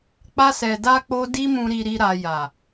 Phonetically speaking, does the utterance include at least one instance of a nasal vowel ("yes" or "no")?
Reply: yes